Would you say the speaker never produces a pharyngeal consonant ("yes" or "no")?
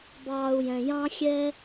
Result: yes